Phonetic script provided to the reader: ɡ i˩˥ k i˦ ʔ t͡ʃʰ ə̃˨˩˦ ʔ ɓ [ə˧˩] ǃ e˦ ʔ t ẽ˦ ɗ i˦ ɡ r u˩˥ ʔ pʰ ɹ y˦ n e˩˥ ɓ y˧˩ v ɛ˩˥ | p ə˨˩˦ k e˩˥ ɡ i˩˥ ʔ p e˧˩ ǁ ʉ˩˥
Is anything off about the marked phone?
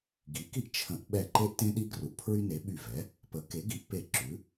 yes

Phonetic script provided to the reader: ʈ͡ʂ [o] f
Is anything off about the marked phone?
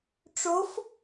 no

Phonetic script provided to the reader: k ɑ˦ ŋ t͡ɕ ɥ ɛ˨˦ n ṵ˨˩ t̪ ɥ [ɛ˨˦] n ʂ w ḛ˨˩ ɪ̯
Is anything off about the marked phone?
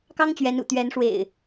no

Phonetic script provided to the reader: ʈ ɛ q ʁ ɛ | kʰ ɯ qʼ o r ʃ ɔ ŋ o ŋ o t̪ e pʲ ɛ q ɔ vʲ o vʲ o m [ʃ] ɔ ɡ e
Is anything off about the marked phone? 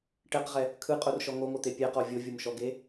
no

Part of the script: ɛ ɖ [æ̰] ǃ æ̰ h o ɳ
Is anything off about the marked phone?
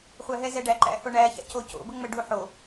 yes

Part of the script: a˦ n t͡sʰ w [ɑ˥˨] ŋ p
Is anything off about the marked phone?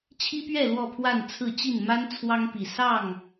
yes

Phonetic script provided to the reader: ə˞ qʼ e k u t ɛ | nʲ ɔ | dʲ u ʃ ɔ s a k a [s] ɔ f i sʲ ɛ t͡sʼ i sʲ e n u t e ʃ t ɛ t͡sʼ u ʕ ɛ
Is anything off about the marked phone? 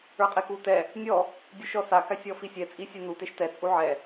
yes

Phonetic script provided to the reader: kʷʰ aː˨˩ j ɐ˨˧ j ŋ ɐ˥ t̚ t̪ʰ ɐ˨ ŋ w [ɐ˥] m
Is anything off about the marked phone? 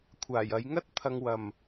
yes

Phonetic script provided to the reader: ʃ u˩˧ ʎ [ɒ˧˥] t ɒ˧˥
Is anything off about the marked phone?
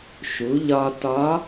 yes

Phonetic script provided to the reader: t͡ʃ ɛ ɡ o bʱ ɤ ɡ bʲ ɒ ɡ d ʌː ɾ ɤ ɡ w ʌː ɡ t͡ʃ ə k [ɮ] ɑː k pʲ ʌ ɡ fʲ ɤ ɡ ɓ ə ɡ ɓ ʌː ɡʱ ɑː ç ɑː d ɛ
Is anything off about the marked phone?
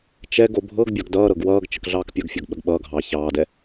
no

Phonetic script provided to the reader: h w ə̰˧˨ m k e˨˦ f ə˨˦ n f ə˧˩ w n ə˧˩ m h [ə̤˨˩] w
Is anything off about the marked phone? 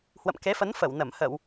yes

